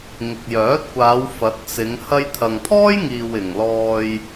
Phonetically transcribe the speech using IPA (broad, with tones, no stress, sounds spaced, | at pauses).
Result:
ŋ ɪ˨ k̚ j œː˨˥ t̚ kʷ aː˨˧ w f ɐ˨˥ t̚ t͡s ɪ˨˧ ŋ h ɐ˧ j t̪ʰ ɐ˨ ŋ t̪ʰ ɔː˥ j ŋ iː˨ w ɪ˨ ŋ l ɔː˧ j